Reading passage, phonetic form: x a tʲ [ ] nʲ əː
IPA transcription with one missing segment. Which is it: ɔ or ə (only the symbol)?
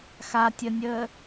ə